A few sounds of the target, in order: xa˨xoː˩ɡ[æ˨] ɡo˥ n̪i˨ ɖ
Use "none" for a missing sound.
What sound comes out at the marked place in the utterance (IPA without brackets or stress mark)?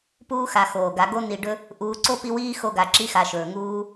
a˨